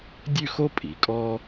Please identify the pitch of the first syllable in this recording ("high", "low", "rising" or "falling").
falling